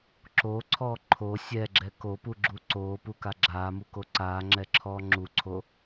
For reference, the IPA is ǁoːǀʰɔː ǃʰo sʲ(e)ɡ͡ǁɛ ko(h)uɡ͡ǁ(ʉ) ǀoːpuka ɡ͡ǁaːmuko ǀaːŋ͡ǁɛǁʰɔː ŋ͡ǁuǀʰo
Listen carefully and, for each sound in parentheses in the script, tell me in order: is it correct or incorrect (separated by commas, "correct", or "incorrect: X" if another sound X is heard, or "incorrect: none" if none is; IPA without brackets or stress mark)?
incorrect: ɛ, incorrect: p, incorrect: u